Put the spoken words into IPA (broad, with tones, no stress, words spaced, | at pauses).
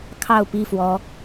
kʰɑ˥˨ʊ̯pi˥˨fwɔ˨˦